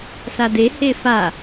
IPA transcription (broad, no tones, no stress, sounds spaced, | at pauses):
s a d e h e f a